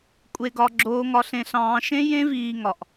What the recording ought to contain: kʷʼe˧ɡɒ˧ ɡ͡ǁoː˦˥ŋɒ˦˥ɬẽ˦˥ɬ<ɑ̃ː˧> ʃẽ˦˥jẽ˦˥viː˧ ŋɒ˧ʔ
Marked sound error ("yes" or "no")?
yes